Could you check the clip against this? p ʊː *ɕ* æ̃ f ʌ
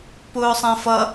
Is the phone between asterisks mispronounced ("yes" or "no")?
yes